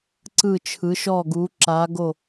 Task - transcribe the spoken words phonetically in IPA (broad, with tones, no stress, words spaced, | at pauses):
ǀɯ˧˩t͡ʃʰɯ˩˧ʃɔ˧˩ ɡu˩˧ǁa˩˧ ɡo˧˩